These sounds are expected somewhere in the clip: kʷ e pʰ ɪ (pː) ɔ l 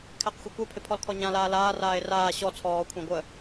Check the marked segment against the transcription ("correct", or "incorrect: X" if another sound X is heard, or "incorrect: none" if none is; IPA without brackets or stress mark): incorrect: pʰ